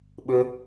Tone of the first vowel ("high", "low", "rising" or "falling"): low